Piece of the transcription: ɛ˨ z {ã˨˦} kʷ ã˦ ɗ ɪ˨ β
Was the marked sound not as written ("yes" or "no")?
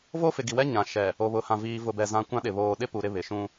yes